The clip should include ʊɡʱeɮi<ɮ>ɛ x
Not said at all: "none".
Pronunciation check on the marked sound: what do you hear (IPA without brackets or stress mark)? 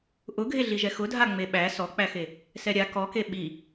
ʒ